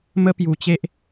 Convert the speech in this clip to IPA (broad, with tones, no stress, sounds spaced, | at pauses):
m ə˧ p j u˨˩ t͡ɕ e˦ ʔ